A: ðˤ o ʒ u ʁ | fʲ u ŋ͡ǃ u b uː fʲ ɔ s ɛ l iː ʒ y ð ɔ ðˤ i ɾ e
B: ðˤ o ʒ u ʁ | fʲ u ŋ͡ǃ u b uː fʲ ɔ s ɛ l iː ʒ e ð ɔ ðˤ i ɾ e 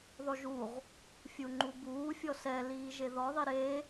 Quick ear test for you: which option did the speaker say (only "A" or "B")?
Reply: B